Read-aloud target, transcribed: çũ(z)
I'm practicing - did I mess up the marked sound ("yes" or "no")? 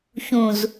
no